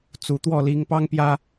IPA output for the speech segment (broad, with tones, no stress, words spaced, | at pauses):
t͡su˨˩t̪wɔ˥˩ li˧˥ŋpɑ˥ŋpjä˥